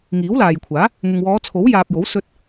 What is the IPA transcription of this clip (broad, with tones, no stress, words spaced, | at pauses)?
ŋiː˨˥wlaː˨jkʷʰaː˨˥ | ŋɪ˨ŋwɔː˨˧t͡sʰo˨˥w jaː˨p̚jo˨˥wsɵ˧t̚